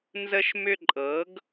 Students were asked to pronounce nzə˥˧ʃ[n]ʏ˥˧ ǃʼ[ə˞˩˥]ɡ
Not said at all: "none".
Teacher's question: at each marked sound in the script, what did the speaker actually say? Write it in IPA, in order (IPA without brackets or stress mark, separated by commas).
m, ɤ˩˥